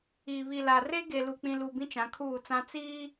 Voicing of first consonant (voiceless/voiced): voiced